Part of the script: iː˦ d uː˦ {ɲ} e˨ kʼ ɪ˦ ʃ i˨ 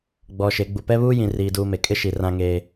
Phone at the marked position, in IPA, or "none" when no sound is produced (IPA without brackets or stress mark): m